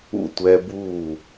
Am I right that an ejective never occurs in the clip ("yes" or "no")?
yes